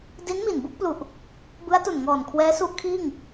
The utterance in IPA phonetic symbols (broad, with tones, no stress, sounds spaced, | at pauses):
d i˦˥ n m i˨˩ n b u˥˩ k̚ p l u˨˩ ʔ | b ɯ˦˥ a̯ t u˨˩ n ŋ ɔː˨˩ n kʰ w ɛː˦˥ s u˦˥ ʔ kʰ iː˥˩ ŋ